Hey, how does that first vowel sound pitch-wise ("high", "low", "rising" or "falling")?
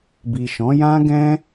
low